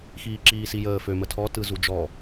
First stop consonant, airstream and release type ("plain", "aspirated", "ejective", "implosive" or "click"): click